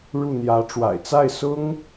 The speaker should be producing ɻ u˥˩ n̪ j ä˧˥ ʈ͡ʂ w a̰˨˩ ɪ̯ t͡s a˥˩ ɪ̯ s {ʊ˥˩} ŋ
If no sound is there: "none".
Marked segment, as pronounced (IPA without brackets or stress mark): ʊ˥